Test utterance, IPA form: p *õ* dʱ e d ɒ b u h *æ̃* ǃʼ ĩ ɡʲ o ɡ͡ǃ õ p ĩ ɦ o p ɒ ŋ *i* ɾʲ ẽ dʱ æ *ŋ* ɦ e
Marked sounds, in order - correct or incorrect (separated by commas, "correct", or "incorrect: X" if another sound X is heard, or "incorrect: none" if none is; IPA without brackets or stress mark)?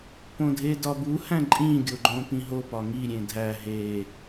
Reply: correct, correct, correct, incorrect: none